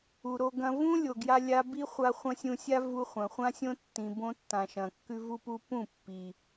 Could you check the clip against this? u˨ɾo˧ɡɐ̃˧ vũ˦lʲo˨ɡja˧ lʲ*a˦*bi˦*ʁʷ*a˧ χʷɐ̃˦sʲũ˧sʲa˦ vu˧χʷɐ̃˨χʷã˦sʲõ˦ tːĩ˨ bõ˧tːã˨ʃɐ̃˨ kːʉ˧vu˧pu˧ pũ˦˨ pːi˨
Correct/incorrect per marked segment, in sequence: incorrect, incorrect

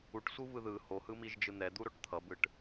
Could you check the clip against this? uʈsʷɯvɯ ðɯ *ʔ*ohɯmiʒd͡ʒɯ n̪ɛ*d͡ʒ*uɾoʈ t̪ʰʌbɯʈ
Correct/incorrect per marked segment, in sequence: incorrect, incorrect

